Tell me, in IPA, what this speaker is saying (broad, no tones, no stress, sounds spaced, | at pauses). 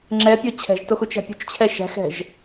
ŋ͡ǁ ɛ pʲ o t͡ɕʰ ɛ̤ ʒ t o x u t͡ʃ æ̤ pʲ ṳ t͡ʃ t͡ɕʰ ɛ ʃ æ̤ x ɛ̤ ʒ